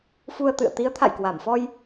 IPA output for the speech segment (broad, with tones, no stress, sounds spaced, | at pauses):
f u˧ ə̯ t̪ ɨ̰˧˨ ə̯ t̪ i˨˦ ə̯ t̪ʰ a̰˧˨ j k w a˧˩ m f ɔ˧ j